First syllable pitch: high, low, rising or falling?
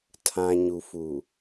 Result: low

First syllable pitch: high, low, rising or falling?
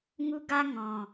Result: high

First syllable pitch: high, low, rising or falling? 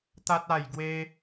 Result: high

